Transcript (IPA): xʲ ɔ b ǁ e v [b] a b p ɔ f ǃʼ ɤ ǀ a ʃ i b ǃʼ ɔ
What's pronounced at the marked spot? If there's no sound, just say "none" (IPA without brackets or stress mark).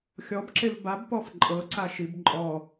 b